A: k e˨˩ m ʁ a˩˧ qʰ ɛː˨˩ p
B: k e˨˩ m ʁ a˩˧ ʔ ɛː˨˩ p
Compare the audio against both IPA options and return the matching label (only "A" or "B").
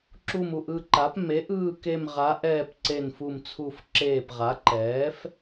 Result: B